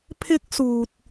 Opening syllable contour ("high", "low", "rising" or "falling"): high